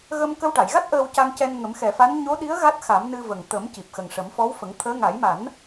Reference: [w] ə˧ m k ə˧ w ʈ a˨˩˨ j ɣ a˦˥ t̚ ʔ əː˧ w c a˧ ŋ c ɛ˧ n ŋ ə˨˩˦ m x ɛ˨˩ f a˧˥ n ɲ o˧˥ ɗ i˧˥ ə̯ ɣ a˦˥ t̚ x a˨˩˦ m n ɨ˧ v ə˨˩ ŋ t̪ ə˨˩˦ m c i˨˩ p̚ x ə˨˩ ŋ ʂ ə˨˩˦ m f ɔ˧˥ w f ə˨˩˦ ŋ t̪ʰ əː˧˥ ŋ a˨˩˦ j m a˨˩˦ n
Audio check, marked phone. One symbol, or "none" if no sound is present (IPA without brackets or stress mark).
ɣ